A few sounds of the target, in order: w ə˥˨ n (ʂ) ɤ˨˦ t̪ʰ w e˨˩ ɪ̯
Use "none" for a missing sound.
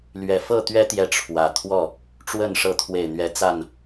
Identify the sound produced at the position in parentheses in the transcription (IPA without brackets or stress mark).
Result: ʂ